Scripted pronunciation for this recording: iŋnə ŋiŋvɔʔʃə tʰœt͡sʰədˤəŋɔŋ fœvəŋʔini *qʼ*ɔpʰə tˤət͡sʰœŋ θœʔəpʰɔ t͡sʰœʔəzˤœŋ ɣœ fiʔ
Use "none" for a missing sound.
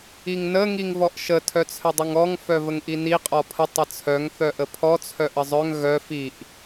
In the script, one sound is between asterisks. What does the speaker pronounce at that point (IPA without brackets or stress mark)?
qʼ